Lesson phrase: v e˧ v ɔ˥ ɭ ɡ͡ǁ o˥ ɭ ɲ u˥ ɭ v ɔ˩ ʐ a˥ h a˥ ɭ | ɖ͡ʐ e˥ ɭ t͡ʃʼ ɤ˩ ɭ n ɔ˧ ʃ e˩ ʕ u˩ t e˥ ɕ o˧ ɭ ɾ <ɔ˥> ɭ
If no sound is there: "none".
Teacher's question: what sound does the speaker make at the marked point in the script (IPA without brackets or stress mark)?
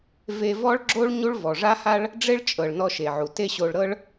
ɤ˥